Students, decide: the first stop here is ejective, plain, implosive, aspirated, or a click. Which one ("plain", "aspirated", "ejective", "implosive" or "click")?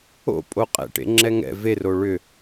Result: ejective